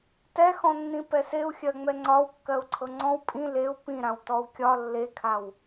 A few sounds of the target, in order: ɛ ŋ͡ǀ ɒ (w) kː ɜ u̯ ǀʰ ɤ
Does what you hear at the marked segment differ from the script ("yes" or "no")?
no